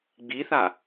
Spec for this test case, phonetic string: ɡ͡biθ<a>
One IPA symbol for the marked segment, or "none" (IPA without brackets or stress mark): a